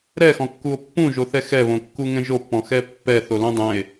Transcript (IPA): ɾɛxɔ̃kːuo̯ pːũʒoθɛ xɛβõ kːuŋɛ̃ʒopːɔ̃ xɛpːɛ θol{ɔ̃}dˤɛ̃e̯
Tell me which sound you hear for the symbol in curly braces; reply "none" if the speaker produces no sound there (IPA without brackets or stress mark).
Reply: õ